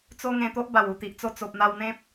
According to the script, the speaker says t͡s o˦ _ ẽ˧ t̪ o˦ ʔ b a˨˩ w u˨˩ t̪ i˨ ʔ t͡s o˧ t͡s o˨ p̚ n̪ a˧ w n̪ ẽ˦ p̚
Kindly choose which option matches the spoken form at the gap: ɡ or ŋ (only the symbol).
ŋ